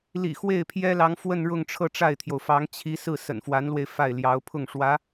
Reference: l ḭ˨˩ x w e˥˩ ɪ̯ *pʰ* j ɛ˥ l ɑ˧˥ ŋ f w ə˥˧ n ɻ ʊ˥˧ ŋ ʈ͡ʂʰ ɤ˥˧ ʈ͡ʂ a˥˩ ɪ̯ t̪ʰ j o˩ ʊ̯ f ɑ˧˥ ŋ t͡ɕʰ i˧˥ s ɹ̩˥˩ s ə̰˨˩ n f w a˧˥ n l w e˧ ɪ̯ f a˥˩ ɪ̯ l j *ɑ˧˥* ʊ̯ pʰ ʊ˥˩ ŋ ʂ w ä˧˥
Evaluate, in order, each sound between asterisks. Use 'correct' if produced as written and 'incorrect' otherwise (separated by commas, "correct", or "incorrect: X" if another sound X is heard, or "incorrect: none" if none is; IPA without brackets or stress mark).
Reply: correct, correct